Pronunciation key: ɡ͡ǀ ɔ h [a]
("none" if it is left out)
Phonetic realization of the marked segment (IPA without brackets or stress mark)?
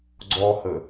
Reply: ə